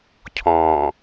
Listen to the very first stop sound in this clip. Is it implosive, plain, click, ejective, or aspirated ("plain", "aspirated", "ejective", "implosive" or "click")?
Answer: aspirated